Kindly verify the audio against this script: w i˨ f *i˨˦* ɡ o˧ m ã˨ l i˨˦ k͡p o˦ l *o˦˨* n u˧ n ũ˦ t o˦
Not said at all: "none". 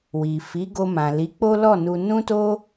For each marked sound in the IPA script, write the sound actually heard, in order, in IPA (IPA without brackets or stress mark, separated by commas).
i˨˦, ɔ˦˨